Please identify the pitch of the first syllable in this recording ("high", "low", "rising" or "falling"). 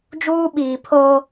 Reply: high